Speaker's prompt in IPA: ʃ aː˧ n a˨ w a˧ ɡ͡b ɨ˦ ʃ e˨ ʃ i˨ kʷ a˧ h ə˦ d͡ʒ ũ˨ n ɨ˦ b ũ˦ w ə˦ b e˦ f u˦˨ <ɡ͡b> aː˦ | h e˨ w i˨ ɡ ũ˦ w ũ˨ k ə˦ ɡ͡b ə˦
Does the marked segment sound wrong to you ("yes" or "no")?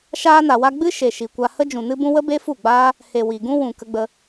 no